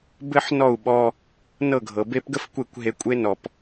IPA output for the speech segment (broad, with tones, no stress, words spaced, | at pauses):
bɘ˦ħnɔ˦˨u̯ ɓɔ˧ | nɤ˦˨ɡʱɤ˨be˦p ɡə˦fkʷe˦˨kʷ ɦe˧kʷʼe˦ nɔ˧p